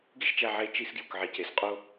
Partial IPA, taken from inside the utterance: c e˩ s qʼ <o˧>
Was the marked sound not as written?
no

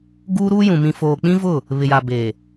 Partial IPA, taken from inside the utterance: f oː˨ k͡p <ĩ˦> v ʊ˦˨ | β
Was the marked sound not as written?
no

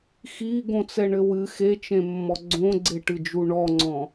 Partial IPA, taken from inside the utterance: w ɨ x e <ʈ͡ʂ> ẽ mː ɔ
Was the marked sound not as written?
yes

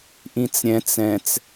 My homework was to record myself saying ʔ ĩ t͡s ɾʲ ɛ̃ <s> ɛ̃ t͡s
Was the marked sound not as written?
yes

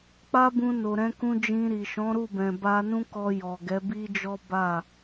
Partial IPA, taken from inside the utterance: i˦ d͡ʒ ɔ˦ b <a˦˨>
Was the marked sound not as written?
no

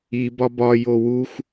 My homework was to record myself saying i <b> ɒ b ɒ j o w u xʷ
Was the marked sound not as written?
no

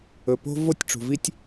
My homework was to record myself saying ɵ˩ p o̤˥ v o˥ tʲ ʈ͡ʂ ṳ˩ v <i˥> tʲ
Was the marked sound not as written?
no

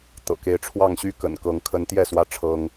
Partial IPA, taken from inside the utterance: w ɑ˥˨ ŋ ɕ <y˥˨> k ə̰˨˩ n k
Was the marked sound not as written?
no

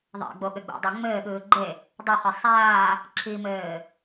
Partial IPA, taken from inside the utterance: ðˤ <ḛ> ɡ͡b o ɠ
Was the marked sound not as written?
no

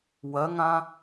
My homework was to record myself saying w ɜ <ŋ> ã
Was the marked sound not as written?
no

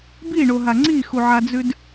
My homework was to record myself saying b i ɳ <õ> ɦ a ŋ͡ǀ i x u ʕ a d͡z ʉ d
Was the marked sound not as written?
yes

